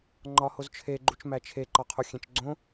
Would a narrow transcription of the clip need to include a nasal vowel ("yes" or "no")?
yes